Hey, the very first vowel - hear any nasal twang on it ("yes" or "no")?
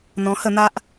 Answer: yes